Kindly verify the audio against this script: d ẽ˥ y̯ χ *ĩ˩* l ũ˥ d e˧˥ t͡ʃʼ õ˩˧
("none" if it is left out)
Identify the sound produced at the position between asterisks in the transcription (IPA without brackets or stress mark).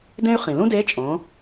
ĩ˩